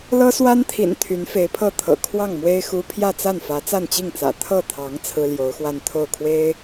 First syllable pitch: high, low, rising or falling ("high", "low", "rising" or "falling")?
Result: high